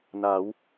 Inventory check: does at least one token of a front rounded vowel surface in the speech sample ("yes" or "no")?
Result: no